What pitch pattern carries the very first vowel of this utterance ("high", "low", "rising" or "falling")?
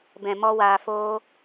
low